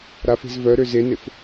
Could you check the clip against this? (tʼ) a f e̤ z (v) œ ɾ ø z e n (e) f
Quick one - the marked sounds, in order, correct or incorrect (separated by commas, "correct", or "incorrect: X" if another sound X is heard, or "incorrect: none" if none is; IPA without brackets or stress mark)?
incorrect: ɾ, correct, correct